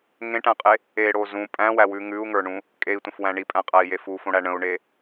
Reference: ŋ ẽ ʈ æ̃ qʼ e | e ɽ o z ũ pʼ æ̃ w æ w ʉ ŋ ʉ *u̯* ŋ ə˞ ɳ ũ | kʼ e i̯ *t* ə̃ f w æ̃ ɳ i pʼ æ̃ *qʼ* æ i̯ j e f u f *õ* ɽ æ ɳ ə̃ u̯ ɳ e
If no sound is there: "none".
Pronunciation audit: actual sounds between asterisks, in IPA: u̯, tʷ, qʼ, õ

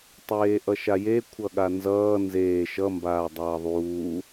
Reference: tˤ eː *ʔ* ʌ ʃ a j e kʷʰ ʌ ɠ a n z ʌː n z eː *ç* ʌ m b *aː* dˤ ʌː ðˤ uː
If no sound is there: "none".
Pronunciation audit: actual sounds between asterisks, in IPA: ʔ, ʃ, aː

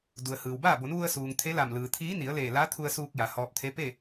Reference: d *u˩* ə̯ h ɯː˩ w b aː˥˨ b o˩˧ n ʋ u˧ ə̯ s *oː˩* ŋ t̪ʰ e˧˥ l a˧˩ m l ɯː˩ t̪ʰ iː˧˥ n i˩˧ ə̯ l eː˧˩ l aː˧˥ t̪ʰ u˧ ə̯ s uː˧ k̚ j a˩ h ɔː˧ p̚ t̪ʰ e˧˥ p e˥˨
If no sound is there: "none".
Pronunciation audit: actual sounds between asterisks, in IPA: u˩, uː˩

